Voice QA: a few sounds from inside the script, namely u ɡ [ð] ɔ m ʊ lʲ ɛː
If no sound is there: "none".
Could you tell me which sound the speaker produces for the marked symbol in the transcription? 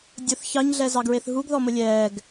ð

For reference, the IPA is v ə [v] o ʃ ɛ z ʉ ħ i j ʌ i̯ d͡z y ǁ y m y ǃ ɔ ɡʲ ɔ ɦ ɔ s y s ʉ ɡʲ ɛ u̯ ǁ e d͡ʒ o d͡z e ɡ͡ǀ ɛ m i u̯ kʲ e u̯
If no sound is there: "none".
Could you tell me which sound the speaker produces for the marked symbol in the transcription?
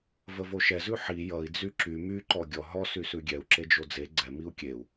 v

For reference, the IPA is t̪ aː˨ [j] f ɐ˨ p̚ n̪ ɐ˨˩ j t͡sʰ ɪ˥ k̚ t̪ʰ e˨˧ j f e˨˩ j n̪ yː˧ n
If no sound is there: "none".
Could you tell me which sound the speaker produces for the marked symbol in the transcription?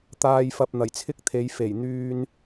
j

